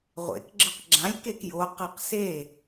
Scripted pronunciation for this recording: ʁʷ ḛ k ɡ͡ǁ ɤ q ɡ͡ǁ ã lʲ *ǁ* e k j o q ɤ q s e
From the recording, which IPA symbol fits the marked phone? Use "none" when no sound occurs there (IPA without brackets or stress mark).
k